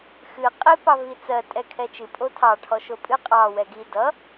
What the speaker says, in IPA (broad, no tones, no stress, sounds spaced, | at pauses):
x ɨ qʼ i p ɑ v i t͡s ɜ tʼ ɛ kʰ ɛ t͡ʃ ɨ pʼ o tʰ ɑ ʈʰ ɔ ʃ o pʼ ɨ qʼ ɑ w ɛ ɡ i d ʌ